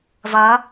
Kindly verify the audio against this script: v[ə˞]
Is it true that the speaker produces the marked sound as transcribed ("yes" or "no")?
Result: no